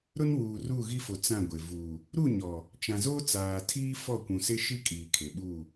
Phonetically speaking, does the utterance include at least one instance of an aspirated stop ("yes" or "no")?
yes